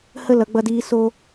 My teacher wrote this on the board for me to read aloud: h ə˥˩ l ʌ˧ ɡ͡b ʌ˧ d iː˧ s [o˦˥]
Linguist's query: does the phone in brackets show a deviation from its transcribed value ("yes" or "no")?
yes